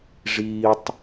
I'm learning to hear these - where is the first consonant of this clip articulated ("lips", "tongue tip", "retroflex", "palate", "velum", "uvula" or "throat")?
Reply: retroflex